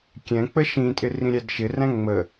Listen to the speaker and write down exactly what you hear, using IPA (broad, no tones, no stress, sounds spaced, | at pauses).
kʲ ɛ̃ k͡p ə ʃ ĩ tʼ ɪ r ĩ ɾʲ æ d ʃ ɪ r æ̃ ŋ͡m ə